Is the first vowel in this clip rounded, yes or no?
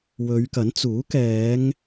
yes